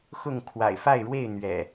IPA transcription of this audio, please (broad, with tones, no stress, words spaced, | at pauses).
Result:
xʊ˥˨ŋ kʰwa̰˨˩ɪ̯fa˥˨ɪ̯ɻwe˥˨ɪ̯ n̪ɥɛ̰˨˩